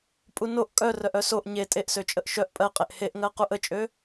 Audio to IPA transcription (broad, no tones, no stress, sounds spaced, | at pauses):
pʼ u n o ʔ kʼ œ r œ ʔ œ s o ʔ ɲ e tʼ e ʔ s ø t͡ʃʼ ə ʔ ʃ œ ʔ pʼ ɜ qʼ e ʔ h e ʔ ŋ ɜ q u ʔ ə t͡ʃʼ ø